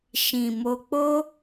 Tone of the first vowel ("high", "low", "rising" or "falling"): low